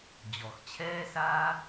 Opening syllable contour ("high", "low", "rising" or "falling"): low